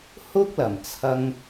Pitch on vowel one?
high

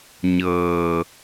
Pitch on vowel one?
low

